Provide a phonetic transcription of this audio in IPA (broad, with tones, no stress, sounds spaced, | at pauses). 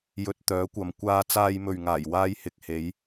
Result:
j ɵ˧ t̚ t̪ œː˨˥ kʷ ɐ˨ m kʷ aː˧ t͡s aː˧ j m ɵ˨ ɥ ŋ aː˨˩ j w aː˧ j h ɪ˨ k̚ h e˨˧ j